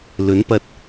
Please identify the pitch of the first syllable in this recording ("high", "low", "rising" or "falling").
rising